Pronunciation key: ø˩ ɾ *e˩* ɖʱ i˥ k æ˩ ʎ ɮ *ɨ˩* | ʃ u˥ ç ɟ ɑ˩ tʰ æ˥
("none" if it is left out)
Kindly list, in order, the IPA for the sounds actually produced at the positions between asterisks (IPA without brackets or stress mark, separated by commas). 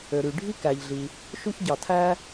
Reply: y˩, i˩